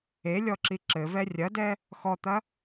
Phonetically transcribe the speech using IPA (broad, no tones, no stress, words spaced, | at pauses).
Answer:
elʲɔǁi ǁɘvɛ rʲɐdɛ | xɔt̪ɐ